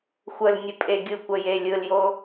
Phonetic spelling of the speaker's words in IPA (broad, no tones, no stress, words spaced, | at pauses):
xʷəlnʲə pʼeɡʲɯkʷə jelʲɯljo